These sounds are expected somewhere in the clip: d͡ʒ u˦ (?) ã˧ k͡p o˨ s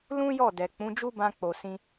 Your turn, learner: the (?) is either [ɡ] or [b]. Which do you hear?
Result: b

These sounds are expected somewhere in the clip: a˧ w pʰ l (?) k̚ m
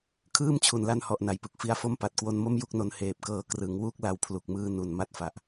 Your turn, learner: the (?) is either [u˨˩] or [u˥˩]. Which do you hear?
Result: u˨˩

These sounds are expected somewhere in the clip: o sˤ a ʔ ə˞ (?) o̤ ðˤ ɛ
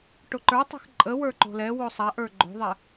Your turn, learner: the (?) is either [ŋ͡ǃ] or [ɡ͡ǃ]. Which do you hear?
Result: ɡ͡ǃ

